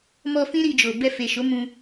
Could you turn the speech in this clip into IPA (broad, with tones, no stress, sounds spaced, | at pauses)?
m ɔ˧ f ĩ˦ ɾ i˧ d͡ʒ o˨ b ɛ˧ f e˨ ʃ o˨˦ m ũ˧